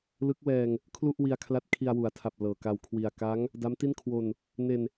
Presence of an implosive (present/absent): absent